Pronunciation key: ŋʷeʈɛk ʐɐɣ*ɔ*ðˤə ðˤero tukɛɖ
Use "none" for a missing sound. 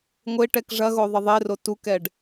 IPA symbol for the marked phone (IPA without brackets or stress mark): o